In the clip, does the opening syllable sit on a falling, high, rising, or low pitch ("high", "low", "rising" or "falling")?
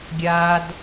low